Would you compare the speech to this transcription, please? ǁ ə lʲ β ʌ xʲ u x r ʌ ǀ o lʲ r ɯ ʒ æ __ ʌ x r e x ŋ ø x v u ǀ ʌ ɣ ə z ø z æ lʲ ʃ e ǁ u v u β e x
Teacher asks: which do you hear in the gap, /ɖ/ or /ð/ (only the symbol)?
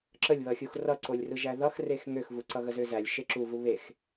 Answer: ð